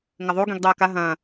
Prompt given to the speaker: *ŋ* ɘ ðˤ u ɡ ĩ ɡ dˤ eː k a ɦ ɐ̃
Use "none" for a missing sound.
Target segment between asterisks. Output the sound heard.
ŋ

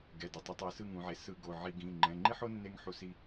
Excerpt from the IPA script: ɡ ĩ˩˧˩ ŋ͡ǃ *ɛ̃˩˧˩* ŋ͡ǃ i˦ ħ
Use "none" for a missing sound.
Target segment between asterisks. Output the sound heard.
ɛ̃˩˧˩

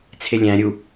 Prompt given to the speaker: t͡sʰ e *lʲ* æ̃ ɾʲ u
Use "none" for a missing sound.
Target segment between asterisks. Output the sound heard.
lʲ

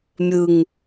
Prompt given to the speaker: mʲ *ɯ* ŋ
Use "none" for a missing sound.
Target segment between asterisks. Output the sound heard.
ɯ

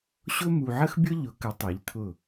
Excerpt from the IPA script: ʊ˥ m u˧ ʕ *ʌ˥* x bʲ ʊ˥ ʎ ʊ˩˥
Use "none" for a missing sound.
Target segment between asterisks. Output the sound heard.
ə˥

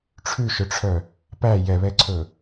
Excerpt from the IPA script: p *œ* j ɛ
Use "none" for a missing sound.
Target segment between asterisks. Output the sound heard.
æ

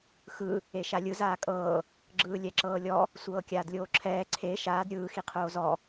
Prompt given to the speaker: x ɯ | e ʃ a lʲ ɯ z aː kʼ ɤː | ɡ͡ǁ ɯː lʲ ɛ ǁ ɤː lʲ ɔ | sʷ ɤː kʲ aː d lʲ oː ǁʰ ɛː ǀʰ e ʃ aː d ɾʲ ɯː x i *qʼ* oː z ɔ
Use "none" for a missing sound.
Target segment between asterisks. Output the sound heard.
qʰ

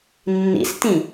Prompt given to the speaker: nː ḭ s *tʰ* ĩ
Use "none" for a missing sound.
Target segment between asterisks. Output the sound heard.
t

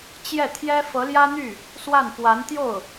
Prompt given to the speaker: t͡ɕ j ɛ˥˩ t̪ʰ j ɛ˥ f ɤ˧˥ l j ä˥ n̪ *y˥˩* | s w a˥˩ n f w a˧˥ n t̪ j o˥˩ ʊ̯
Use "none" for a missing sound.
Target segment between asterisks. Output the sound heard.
y˥˩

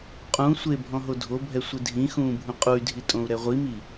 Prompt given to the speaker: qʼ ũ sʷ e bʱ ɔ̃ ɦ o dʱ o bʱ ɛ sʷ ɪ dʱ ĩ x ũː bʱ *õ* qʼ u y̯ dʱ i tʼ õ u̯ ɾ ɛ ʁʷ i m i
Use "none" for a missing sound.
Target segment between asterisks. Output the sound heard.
ũ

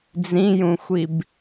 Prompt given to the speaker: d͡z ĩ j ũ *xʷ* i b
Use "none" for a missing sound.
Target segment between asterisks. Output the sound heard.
xʷ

